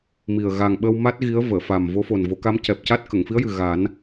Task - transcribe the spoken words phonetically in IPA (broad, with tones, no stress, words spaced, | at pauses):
mi˨˩ə̯ ɣa˨˩ŋɓə˧wma˦˥t̚ ɣi˧˥ə̯ vəː˨˩˨fa˨˩m vo˧˥fo˨˩nvo˨˩˦ka˧˥m cɛ˨˩p̚ca˦˥t̚ kə˨˩˨ŋ fi˧˥ə̯jɨ˨˩ ɣa˨˩˦n